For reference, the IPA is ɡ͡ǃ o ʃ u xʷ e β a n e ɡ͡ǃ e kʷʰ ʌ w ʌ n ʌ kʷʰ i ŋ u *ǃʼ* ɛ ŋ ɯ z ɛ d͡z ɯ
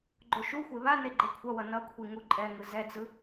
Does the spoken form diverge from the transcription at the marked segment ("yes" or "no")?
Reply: no